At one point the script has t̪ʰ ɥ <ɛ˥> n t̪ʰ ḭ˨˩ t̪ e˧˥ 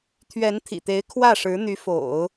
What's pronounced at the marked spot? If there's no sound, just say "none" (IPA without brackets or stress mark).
ɛ˧˥